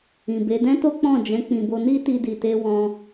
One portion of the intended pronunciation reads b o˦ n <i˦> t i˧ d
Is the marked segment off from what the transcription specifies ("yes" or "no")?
no